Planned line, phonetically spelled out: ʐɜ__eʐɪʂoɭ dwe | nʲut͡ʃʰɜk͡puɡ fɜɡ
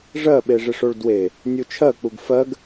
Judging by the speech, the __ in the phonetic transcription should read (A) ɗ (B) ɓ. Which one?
B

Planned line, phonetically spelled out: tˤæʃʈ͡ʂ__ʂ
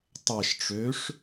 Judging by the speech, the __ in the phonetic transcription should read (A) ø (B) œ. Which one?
A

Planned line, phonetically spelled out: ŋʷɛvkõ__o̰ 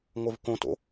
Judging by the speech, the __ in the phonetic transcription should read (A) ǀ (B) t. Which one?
B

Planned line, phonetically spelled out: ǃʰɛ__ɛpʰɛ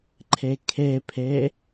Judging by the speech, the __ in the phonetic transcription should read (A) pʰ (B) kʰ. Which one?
B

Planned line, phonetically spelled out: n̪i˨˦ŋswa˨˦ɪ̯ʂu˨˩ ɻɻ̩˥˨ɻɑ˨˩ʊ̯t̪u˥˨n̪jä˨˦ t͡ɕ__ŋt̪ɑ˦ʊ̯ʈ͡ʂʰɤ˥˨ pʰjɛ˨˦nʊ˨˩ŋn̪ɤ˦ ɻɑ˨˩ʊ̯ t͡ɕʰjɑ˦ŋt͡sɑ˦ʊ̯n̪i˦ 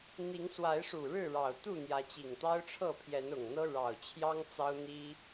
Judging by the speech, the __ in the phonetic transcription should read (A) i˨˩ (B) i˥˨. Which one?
A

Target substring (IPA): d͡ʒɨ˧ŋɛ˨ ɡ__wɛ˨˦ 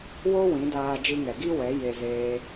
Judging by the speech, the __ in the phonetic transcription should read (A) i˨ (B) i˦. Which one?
B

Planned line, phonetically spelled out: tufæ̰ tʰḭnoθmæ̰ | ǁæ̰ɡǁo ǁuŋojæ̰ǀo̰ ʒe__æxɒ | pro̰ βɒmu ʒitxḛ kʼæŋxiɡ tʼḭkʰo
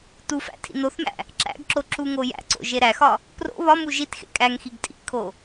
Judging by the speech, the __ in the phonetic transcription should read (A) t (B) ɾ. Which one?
B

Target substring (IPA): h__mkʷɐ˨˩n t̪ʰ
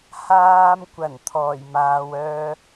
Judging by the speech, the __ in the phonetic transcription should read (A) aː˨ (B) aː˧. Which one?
B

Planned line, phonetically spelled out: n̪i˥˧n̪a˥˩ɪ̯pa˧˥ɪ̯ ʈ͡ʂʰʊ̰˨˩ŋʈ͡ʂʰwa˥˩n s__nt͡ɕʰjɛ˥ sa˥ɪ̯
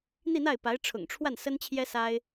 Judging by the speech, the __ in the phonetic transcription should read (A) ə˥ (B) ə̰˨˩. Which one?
A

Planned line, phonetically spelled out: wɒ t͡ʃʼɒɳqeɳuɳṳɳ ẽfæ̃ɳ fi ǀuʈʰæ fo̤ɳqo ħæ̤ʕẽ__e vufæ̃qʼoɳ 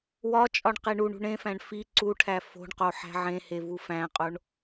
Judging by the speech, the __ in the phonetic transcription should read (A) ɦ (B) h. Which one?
B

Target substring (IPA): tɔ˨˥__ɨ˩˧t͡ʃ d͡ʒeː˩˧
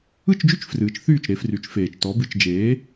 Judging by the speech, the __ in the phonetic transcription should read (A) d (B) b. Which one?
B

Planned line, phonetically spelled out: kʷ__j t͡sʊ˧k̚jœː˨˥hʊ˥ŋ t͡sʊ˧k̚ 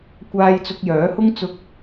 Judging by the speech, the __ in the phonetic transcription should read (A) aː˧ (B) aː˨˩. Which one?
A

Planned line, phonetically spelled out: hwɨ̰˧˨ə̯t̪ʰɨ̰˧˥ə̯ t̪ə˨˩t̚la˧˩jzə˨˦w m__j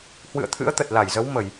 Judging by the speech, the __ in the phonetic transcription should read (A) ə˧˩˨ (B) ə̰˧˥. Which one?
A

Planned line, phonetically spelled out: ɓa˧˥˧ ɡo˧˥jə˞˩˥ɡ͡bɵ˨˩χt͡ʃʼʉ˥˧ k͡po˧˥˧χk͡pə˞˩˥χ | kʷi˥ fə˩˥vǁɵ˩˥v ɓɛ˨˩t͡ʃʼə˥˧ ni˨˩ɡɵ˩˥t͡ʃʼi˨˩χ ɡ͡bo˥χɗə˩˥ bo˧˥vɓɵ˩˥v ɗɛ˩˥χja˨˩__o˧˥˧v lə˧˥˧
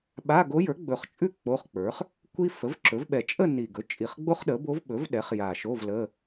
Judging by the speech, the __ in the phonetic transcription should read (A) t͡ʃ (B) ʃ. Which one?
B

